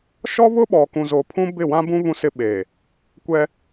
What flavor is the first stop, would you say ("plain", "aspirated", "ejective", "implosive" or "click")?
implosive